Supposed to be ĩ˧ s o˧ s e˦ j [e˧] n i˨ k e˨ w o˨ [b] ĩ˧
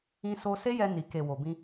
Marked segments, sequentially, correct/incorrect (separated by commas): incorrect, correct